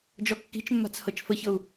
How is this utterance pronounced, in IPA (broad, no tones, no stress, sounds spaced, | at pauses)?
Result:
d͡ʒ ɔ kː i̤ t͡ʃ mː a̤ t͡s h ɤ t͡ʃ f ə ç ɤ u̯